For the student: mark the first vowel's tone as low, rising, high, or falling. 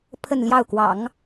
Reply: falling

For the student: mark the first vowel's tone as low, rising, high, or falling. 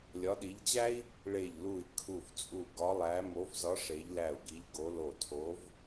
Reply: rising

